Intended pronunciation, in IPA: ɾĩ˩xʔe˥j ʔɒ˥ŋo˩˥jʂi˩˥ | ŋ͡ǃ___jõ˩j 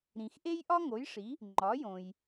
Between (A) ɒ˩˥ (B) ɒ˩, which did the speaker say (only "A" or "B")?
A